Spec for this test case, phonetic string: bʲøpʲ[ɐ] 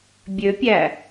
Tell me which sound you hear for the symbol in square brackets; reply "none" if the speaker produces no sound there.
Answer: æ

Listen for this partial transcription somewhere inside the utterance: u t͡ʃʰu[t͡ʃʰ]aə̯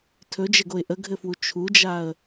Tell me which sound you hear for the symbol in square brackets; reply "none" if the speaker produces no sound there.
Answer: d͡ʒ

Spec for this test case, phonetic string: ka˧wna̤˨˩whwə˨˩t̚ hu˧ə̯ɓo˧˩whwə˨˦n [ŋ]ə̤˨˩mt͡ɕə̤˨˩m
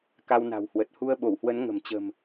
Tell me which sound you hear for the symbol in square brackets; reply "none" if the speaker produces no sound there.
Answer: ŋ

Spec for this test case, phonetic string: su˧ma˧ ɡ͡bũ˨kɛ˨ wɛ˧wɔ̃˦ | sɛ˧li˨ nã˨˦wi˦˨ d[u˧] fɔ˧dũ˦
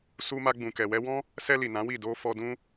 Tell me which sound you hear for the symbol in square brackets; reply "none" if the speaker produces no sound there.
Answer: o˧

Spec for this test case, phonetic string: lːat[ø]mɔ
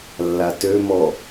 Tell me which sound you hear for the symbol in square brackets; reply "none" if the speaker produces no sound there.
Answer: ø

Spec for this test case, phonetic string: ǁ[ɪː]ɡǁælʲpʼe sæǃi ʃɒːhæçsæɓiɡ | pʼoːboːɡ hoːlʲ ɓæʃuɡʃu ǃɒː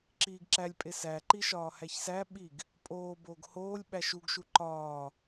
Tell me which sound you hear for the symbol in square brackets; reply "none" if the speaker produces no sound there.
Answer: iː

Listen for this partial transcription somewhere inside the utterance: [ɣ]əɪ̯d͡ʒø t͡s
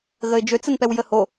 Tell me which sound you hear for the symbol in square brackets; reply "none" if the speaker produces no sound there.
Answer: ɣ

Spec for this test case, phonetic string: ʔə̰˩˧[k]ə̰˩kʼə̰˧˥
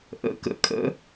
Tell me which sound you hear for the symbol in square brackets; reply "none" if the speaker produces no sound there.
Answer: k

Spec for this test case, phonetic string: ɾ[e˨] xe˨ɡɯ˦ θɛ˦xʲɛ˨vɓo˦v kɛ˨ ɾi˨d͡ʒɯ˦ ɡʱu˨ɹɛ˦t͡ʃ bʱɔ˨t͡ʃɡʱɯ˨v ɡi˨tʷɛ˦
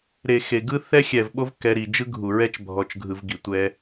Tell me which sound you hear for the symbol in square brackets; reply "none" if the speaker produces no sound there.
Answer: e˨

